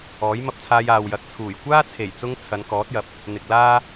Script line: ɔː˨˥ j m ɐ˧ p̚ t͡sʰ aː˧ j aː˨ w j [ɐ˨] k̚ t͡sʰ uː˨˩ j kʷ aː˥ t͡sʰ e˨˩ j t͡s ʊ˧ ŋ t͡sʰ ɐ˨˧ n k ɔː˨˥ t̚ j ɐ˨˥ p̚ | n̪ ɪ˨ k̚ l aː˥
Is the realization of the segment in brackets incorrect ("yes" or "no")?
no